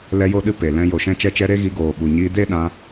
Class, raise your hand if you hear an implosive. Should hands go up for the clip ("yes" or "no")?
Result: yes